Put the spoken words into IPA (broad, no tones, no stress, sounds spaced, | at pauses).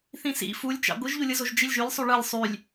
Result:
θ ĩ s ḭ f u lʲ t͡ʃ ɑ̰ ɡʷ ɯ ʒ ʎ u lʲ ɯ z o ʒ d͡ʒ i lʲ ʒ y lʲ sˤ y ɭ ɯ lʲ sˤ y lʲ